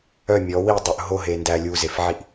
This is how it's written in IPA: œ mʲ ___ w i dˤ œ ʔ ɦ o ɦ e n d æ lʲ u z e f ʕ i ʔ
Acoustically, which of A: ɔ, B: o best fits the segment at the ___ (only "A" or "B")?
A